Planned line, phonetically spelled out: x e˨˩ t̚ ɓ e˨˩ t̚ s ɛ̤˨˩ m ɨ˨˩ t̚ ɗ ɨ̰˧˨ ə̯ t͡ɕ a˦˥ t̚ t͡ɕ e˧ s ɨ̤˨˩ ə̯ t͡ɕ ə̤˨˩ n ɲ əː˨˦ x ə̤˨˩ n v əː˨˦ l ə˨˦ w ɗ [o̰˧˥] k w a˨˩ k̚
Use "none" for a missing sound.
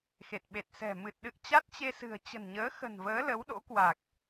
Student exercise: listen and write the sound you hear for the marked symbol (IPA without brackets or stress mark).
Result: o̰˧˥